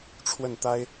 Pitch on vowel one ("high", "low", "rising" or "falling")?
falling